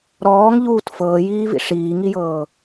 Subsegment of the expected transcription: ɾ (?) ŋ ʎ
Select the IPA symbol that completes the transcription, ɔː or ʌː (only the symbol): ɔː